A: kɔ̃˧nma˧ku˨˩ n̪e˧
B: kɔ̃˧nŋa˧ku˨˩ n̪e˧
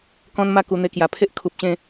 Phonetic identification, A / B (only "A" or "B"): A